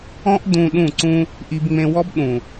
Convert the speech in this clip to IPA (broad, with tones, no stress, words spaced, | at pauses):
ɔ̃˦ʔdũ˧ ɗũ˦˨ǀũ˦ | ʔi˧bŋ͡mẽ˧wɔ˦bɗũ˨